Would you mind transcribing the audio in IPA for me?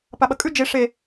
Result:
p a ɓ ɐ kʼ ʉ d͡ʒ e ʂ e

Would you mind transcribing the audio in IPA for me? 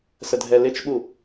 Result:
s ə dʱ ɛ l ɪ t͡ʃ ɓ u

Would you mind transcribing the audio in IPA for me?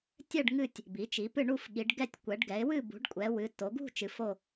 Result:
tʲ ɛ˦˨ ɖ ŋ ɨ˦˨ tʲ | b i˩˧ t͡ʃ i˩˧ p ɨ˦˨ ɳ u˦˨ f ɠ i˩˧ ɖ ɡ ɛ˦˨ tʲ kʷ ɛ˩˧ ɖ ɡ ɛ˩˧ ɪ̯ w ɨ˦˨ b ṳ˩˧ ɖ kʷʼ ɛ˩˧ w ɨ˩˧ t o˩˧ ɡ ṳ˦˨ t͡ʃ ɨ˩˧ f o˦˨

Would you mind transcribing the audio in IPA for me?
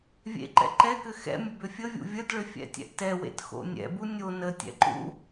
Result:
vʲ ḛ ǃ ɛ̰ ǃ ɛ k ʏ x ɛ̰ mʲ ə b ʏ fʲ ə vʲ ṵ vʲ ə d ɭ ʏ fʲ ɛ̰ tʲ ɛ̰ ʔ t ɛ w ḛ t x o̰ nʲ ɛ̰ b u nʲ o n ə tʲ ɛ̰ ǃ ṵ

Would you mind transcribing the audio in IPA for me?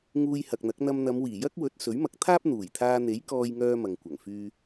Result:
ŋ uː˧ j h ɐ˨ k̚ n̪ ɐ˨˥ k̚ n̪ ɐ˧ m n̪ ɐ˨˧ m w iː˨˩ j ɐ˥ k̚ w ɵ˨˥ t̚ s ɵ˨˥ ɥ m ɐ˨˥ k̚ t̪ʰ aː˥ p̚ n̪ uː˨˩ j t̪ʰ aː˧ n̪ e˨˥ j k ɔː˧ j ŋ œː˧ m ɐ˨ ŋ kʷ ɐ˨˩ ŋ f yː˧

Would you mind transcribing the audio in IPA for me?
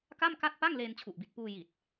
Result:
k a˥˩ m k a˥˩ t̚ p a˥˩ ŋ l eː˧ n t͡ɕʰ u˨˩ ʔ b i˨˩ t̚ p uː˧ j i˨˩ t̚

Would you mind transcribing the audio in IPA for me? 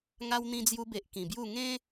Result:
ŋ a˧ w n̪ ĩ˧ d͡z j u˧ b e˨ ʔ k ĩ˨˩ b j u˥˧ ŋ ẽ˦

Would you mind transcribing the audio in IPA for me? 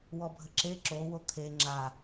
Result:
w ɔ bʱ ə ǁ e ǁ o w o t̪ʰ e ŋ͡ǁ a

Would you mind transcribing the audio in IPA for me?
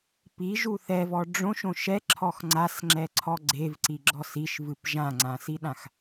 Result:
p i ʒ u θ ɛ v ɔ ɖ͡ʐ õ ʃ õ ʃ ɛ ǁʰ ɔ x ŋ͡ǀ a s ŋ͡ǁ ɛ ǀʰ ɔ ɡ͡ǀ e v ǀ i ɡ͡ǁ ɔ s i ʃ v ɨ p ʒ ã ŋ͡ǀ ã s i ɗ ã x

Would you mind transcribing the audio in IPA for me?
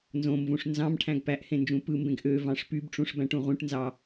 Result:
n z õ m v ũ ʂ n z ɑ̃ m ʈʰ æ̃ ɡ p æ ʔ h ẽ n d͡ʒ ũ p ɯ m b ẽ ɡ ʔ ø v ɑ̃ ʂ p y b ʈ͡ʂ ũ ʂ b æ̃ ʈ ũ ʁ ũ ʈ n z ɑ

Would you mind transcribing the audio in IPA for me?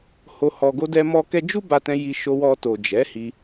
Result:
h o˧ h ɔ˧ ɡ o˦ d ɛ˦ m ɔ˦ k ɛ˦ d͡ʒ u˦ b a˧ t ɛ̃˧ j i˧ ʃ o˧ w ɔ˧ t o˨ d͡ʒ ɛ˨˦ h i˧

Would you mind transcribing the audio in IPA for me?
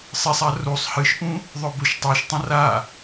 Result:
sˤ e sˤ a r u sˤ h ɨ ʃ ʔ ũ | ðˤ ɵ b ɵ ʃ tˤ o ʃ tˤ ɐ̃ r a

